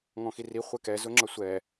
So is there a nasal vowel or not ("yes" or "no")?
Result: yes